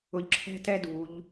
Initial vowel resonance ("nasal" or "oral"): oral